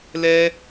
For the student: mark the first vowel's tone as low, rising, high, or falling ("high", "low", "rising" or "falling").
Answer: high